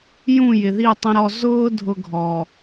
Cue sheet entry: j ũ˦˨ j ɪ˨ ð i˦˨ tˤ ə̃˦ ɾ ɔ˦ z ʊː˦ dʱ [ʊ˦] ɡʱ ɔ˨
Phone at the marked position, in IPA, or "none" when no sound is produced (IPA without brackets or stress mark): ʊ˦